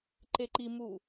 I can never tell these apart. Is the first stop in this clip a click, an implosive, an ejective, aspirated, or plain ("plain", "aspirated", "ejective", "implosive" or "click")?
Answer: click